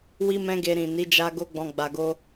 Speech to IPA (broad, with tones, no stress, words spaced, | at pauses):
wi˦mɛ̃˦ɡe˧ ɾĩ˨ni˨˦d͡ʒa˧ ɡo˦ɡ͡bɔ̃˧ ɡ͡ba˨ɡo˧